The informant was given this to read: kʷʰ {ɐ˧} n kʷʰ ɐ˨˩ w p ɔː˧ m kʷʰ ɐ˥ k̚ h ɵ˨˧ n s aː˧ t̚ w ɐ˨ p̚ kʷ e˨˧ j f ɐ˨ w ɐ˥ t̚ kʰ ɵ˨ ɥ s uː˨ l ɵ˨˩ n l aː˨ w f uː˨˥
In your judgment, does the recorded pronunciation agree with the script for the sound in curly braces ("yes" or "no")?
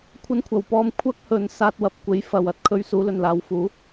yes